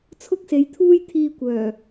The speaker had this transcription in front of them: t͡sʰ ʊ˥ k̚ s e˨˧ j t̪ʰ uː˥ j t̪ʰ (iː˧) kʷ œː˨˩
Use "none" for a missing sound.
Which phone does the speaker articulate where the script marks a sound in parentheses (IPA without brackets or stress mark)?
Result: iː˧